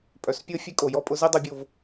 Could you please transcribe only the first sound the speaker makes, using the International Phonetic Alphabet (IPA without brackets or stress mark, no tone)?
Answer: pʼ